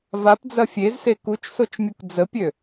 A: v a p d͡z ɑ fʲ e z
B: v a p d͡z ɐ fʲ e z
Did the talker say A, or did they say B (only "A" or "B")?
B